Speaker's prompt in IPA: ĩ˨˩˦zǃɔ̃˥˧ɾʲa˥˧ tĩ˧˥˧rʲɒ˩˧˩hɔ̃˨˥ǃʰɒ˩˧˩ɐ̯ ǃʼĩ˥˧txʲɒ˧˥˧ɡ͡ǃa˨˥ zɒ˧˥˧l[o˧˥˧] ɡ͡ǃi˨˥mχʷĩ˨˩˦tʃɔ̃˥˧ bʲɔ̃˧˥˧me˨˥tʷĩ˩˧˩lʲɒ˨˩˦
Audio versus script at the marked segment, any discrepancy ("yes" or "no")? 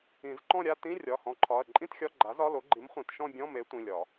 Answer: yes